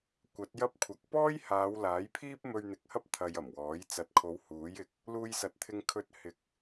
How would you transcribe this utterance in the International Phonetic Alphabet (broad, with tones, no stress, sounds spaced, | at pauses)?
kʷ ɐ˨˥ t̚ j ɐ˥ p̚ kʷʰ ɐ˨˥ k̚ p ɔː˥ j h aː˨˧ w l aː˨˥ j pʰ iː˥ p̚ m ɵ˧ ɥ n̪ ɪ˨˥ k̚ h ɐ˥ p̚ t̪ʰ ɐ˧ j ɐ˨˩ m w ɔː˨˥ j t͡s ɐ˨˥ t̚ kʰ o˨˧ w h uː˨˥ j ɪ˨˥ k̚ | l uː˧ j s ɐ˨˥ t̚ t̪ʰ ɪ˧ ŋ kʰ ɵ˧ t̚ h ɪ˨ k̚